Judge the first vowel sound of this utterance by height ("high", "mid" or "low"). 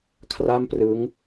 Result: low